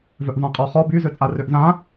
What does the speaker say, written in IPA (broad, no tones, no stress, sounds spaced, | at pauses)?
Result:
v œ ʔ v ã qʼ ɔ χ ɔ b y z ø t͡sʼ a r ø ʔ z ã